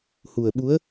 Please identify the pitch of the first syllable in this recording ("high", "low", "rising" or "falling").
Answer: low